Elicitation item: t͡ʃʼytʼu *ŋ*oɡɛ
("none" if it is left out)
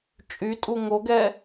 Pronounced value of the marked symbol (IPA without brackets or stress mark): ŋ